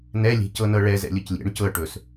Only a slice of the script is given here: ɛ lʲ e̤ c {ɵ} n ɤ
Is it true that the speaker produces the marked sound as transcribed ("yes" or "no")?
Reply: no